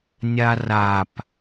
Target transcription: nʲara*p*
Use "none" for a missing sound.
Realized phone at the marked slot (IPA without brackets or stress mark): p